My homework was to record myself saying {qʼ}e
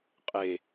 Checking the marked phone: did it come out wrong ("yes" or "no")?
no